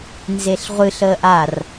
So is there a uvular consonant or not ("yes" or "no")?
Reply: yes